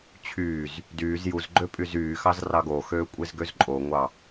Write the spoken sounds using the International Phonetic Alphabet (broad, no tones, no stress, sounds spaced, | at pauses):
t͡ɕʰ yː z | d yː z j u z ɡ͡ǃ ø pʼ y z yː x ɑ z r ɑ ɡ oː x øː kʷʼ e z ɡ ø z ǃʼ o ŋʷ ɑ